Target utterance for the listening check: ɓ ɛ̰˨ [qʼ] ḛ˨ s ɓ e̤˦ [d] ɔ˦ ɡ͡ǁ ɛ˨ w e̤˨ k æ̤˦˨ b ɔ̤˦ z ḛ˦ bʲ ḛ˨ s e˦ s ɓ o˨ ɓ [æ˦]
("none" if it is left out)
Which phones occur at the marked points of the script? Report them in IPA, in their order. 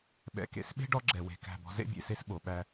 k, ɖ, æ˦

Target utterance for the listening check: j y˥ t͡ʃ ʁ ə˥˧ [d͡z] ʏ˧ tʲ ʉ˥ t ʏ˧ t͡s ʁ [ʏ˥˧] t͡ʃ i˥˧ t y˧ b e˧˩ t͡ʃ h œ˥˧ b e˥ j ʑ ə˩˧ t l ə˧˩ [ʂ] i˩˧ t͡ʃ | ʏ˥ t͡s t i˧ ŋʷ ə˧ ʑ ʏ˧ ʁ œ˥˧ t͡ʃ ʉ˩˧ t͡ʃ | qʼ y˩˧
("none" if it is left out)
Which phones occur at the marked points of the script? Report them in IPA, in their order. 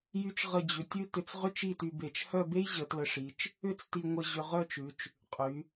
d͡ʑ, ʏ˥˧, ʂ

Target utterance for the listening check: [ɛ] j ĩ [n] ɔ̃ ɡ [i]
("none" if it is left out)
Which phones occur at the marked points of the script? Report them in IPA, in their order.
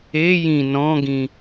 e, n, ĩ

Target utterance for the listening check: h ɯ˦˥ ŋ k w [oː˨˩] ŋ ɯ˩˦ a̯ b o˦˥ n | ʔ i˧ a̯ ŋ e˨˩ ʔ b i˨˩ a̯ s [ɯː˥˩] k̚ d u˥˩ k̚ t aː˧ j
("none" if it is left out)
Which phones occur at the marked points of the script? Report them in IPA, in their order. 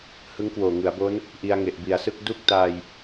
oː˨˩, ɯ˥˩

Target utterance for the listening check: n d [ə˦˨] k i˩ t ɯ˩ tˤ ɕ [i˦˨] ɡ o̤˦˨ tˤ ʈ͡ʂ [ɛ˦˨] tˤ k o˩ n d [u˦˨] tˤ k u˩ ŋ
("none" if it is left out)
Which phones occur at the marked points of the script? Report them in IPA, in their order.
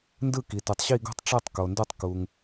ɯ˦˨, i˦˨, ɛ˦˨, u˦˨

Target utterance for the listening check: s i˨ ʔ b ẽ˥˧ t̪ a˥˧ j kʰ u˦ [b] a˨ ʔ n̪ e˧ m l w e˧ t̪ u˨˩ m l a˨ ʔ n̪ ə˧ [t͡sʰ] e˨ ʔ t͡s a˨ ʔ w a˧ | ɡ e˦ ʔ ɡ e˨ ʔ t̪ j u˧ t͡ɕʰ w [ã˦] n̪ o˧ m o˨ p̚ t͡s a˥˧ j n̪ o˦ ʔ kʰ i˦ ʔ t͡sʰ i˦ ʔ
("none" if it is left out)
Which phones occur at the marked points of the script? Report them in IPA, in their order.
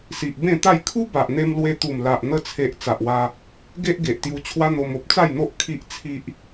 b, t͡sʰ, a˦

